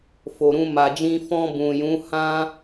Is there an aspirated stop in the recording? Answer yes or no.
no